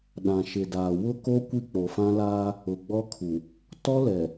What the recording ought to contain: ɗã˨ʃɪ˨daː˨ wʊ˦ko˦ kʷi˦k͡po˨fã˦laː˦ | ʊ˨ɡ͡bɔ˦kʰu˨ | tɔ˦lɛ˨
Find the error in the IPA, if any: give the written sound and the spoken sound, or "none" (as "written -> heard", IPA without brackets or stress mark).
none